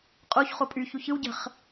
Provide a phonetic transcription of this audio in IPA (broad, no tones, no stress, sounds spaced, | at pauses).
qʼ o ç χ o pʼ y ç u ç ɯ w ɟ ə̤ χ